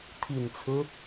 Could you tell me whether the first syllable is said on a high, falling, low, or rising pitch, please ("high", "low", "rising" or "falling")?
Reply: low